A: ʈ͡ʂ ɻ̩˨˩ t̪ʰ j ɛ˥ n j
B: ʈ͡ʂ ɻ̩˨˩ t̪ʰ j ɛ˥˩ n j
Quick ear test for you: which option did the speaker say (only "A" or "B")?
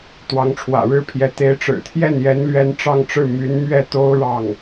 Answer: B